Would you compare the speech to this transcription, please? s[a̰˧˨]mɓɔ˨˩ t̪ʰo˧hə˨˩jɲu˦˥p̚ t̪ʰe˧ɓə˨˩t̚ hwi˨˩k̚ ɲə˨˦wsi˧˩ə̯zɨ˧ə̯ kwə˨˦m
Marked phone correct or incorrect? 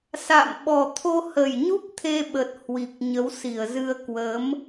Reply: correct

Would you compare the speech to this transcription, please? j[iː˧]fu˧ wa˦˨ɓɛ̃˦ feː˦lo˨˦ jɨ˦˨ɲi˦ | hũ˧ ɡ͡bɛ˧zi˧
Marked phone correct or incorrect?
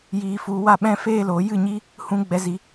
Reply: correct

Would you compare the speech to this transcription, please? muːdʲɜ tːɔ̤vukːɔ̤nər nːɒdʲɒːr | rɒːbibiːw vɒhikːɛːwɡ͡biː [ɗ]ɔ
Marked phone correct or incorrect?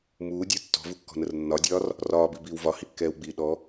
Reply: correct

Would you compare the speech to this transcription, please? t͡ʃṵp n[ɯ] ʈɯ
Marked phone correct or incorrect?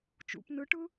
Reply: correct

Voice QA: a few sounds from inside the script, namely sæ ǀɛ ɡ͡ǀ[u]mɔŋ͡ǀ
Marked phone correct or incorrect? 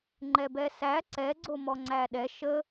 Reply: incorrect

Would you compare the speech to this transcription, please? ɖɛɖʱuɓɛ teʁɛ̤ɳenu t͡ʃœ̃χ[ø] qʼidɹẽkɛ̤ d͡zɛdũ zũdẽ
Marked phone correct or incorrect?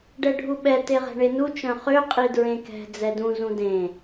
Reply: correct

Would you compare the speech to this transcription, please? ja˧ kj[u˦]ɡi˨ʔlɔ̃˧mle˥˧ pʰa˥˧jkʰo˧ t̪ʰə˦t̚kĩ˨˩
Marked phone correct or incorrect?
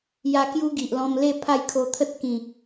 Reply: correct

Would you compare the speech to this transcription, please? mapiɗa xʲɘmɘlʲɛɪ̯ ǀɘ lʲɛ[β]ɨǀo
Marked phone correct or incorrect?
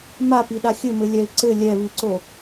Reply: correct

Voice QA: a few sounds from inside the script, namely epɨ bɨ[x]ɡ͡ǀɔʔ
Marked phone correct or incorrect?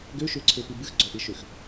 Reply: correct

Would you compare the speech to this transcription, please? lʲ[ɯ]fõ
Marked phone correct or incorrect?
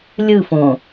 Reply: correct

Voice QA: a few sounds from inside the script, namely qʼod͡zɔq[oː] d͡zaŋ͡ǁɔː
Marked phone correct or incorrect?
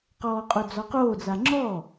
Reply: correct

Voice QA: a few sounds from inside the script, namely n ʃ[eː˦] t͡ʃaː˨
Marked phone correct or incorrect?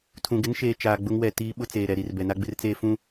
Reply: correct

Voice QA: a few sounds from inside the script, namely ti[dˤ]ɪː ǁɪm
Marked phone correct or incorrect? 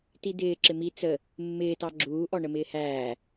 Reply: incorrect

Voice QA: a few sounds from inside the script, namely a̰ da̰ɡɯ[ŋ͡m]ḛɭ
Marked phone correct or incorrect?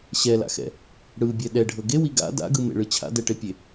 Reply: incorrect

